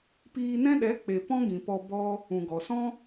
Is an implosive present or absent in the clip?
present